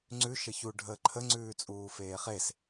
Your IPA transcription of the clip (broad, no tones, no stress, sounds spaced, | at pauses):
ŋ͡ǀ ʉ ʃ ə ç u ɖʱ əː ǃʰ ə ŋ͡ǀ ʉː t͡sʼ uː f eː χ e s